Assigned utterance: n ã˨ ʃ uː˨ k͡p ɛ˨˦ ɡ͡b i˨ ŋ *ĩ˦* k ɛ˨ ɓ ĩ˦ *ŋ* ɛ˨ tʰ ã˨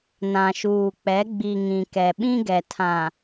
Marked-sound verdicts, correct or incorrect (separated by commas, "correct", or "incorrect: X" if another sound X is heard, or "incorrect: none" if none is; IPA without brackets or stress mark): incorrect: ĩ˨, incorrect: ɡ